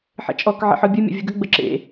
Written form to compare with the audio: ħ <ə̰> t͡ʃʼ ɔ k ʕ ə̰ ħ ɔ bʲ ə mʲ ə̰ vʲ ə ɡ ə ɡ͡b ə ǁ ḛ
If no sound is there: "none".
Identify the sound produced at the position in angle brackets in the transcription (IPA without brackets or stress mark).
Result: ə̰